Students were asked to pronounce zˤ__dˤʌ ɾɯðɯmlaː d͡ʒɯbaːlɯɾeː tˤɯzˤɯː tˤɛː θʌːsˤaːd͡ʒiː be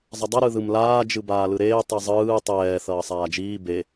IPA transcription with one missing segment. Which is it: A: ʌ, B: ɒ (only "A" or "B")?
A